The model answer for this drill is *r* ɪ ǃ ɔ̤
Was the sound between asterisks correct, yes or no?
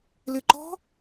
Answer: no